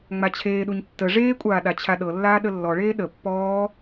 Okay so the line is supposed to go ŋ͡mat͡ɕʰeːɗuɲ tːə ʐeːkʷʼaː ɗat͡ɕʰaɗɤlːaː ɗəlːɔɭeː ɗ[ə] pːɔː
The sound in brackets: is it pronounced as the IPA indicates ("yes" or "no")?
yes